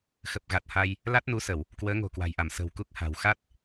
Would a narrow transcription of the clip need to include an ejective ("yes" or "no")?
no